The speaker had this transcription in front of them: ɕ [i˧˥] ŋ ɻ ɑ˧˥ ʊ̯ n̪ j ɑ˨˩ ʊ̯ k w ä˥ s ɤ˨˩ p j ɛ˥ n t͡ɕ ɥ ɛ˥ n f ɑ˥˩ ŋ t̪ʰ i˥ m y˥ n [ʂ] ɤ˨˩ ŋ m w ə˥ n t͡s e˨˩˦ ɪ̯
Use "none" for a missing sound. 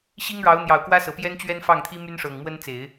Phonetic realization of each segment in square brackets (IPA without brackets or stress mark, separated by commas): i˥, ʂ